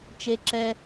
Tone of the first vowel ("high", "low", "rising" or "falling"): high